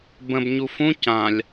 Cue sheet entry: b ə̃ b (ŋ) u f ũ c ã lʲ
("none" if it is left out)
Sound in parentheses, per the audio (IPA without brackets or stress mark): ɲ